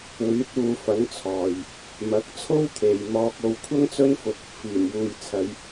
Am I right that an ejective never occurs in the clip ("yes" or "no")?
yes